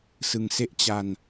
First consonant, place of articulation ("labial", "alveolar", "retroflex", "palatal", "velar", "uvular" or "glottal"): alveolar